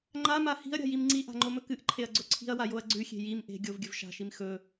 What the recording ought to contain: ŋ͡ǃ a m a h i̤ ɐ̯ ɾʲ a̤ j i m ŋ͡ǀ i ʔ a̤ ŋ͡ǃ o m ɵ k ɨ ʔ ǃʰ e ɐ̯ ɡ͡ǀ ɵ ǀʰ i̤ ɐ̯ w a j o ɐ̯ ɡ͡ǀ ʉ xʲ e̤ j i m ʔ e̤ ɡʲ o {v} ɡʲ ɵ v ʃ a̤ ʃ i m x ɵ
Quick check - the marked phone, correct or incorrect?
correct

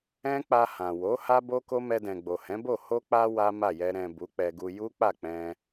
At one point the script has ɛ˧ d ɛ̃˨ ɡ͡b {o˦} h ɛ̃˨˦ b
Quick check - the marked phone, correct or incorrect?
incorrect: o˨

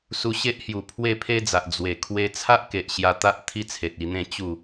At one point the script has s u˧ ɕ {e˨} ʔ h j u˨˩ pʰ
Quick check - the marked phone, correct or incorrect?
incorrect: e˦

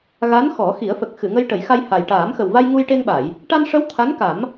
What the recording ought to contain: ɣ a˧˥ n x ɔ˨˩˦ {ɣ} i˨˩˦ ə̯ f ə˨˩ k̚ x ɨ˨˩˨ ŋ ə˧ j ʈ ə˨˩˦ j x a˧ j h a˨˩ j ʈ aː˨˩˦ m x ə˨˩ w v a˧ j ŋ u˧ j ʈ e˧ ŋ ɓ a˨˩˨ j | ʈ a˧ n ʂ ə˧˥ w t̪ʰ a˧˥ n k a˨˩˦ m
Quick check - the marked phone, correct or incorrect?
incorrect: x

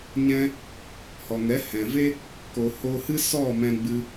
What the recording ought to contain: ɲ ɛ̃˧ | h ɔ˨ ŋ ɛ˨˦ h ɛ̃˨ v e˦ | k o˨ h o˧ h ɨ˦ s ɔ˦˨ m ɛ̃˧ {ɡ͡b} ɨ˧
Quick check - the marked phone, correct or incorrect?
correct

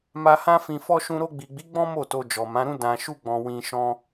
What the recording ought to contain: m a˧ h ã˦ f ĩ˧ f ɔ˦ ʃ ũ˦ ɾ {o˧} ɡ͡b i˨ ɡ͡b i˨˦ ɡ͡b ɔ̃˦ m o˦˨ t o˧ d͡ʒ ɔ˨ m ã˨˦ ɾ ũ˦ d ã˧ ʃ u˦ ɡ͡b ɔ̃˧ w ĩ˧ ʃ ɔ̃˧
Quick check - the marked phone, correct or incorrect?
correct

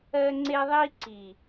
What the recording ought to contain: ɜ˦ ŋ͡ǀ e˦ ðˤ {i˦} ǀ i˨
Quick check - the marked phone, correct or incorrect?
correct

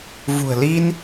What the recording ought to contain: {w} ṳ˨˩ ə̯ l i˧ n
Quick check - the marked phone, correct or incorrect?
incorrect: v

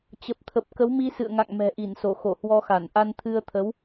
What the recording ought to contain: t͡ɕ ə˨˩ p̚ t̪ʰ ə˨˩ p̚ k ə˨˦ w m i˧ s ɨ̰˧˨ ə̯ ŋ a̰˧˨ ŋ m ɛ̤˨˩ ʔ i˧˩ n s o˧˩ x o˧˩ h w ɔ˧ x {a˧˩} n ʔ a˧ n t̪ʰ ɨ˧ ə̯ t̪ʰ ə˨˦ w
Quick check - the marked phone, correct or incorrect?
correct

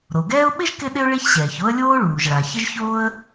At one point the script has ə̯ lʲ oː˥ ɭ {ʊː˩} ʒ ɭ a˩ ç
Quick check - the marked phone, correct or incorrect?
incorrect: uː˩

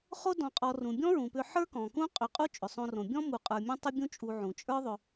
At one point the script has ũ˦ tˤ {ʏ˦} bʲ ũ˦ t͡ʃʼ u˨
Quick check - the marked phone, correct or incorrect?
correct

